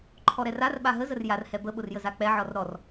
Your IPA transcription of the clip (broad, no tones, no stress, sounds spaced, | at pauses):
ǃʰ ɔ ɾ ɛ r a r ɓ a ɦ ə z ə r j a r h ɛ b ə ɓ ʊ r j ə z a k͡p ɛ ʕ ɔ r ɾ ɔ r